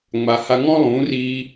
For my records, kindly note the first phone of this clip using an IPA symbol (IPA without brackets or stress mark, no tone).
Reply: ŋ͡m